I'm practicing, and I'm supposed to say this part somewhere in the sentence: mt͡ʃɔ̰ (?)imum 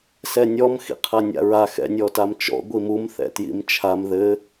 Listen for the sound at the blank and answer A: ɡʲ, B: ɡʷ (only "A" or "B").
B